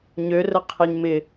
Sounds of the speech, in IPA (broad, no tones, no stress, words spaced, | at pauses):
ɲørə qʰeɲmɪ